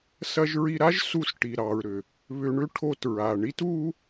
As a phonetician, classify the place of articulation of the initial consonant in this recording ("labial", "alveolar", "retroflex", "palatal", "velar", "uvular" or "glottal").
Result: alveolar